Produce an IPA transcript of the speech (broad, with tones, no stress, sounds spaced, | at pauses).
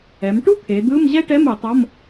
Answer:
ɛ˩˧ m ʈ u˥ t̪ʰ e˩˧ d̪ ɯ˧˥˧ m ʑ ɛ˥ ʈ ɛ˧˥˧ m ɯ˩˧ tˤ ʌ˧˥˧ m